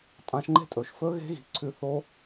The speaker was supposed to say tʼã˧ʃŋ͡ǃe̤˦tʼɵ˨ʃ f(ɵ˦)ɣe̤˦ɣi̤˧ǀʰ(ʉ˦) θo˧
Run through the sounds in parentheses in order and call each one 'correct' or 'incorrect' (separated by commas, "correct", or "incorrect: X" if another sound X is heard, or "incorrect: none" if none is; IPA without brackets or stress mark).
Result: correct, incorrect: ʉ˧